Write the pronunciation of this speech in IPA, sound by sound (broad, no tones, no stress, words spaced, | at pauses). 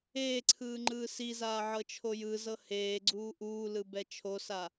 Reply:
eːǀʰɯː ŋ͡ǃɯːsizaː ʕɤt͡ʃʰojɯzɤ heː ɡ͡ǀuːʔuːlɯ bɛt͡ʃʰosa